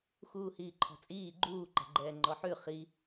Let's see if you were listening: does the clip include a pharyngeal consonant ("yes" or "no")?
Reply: yes